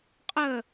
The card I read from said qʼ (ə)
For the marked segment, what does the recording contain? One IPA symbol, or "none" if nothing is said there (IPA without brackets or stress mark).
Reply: əː